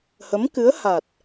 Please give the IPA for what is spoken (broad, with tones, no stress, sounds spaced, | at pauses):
h ə˧˥ m k ɨ˧˥ ə̯ h a˨˩ t̚